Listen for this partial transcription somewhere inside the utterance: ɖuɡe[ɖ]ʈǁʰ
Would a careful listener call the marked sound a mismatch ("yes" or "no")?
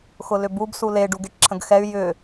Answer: yes